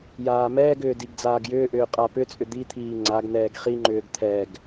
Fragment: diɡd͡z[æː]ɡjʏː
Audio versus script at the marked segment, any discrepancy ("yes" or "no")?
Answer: yes